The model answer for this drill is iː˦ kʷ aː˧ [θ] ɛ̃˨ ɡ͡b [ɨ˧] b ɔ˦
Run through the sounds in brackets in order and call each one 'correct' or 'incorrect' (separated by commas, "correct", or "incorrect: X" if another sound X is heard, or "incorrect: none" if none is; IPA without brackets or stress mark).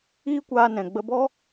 incorrect: n, incorrect: ə˧